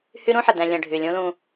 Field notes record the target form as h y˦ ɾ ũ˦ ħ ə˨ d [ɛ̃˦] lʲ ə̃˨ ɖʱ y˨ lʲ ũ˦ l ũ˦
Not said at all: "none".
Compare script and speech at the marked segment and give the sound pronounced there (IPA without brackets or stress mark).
ɛ̃˨